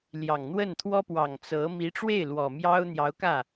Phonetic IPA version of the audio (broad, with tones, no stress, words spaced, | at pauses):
ljɑ˨˩ŋn̪wə˥˩nt̪ʰwɔ˥pwɑ˨˩ŋ t͡sɤ˧˥ mi˧˥ʈ͡ʂwe˥˩ɪ̯ lwɔ˨˩mjɑ˥ʊ̯ n̪jɑ˧˥ʊ̯ kä˥˩